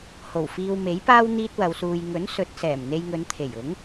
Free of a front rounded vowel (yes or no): yes